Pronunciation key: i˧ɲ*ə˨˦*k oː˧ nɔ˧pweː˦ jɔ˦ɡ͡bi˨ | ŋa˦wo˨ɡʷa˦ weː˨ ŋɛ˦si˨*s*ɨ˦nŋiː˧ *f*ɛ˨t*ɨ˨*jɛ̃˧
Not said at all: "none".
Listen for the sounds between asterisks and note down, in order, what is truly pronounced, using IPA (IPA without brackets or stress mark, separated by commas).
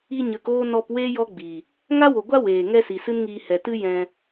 ə˨˦, s, h, ɨ˦